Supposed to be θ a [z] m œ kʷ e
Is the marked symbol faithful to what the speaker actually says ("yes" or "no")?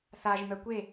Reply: no